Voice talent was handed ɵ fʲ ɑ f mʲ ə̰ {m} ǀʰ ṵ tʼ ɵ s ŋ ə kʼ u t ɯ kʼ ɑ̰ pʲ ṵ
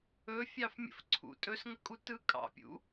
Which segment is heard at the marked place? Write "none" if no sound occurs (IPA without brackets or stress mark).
f